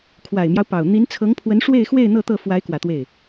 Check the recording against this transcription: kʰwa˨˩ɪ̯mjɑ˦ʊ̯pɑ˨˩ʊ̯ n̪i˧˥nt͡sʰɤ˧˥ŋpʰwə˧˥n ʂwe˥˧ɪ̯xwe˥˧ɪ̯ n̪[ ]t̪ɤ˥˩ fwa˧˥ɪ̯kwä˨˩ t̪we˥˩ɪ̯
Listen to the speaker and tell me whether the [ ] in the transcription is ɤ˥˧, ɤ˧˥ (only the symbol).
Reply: ɤ˥˧